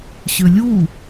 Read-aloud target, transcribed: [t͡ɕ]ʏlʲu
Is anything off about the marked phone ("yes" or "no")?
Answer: yes